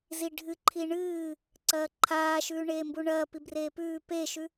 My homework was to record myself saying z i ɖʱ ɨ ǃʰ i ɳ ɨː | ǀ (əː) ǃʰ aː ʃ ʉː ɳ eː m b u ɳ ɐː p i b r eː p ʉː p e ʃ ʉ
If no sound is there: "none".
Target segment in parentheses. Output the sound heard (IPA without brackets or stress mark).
ɐː